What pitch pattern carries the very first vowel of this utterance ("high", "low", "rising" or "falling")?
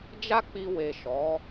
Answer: high